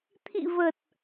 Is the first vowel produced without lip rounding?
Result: yes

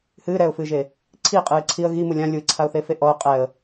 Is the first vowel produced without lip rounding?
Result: yes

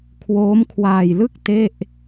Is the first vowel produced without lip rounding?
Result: no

